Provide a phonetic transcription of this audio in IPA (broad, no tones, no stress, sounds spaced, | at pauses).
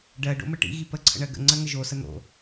ɖ ɜ ɖ o̰ m ə ʈ ḭ ɣ i p ə ǀʰ ə̰ ɳ ɜ ɡ ə̰ ŋ͡ǀ ɜ ŋ ə ʒ o s ə n̪ o̰